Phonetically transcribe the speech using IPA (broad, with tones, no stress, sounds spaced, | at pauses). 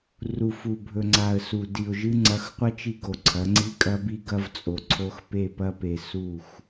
r u˨ f u˨ bʱ ɵ˨ ŋ͡ǀ a˨ ə̯ s u˨ d i˨ ʊ̯ ʒ ɨ˦ ŋ͡ǀ ɐ˨˦ x qʷ ɐ˦ t͡ʃ i˦ ɡ o˨ ǀʰ ɐ˨˦ ŋ͡ǀ i˦ kʼ ɐ˦ b i˦ ɡ ɐ˦ v t͡sʼ o˨ ǀʰ o˦ x p e˦˨ p ɐ˦ p e˨ s u˦˨ x